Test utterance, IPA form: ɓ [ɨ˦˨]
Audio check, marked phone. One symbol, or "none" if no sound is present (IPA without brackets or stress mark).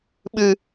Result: ɨ˦